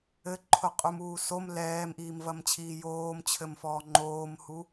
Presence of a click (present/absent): present